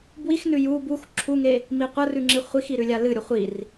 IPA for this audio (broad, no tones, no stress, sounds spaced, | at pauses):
b w i x n ʉ j u b u x ǁʰ u ŋ e | m i qʷ ɐ r ʉ ŋ͡ǁ i χʷ i x i ɾ ʉ lʲ a l ɨ ɾʲ o χʷ i r